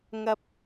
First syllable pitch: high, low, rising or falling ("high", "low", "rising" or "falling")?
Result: high